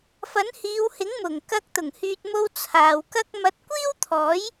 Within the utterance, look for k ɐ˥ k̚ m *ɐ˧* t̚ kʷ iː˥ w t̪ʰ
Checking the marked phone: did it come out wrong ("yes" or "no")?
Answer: no